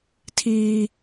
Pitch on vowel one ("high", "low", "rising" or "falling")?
high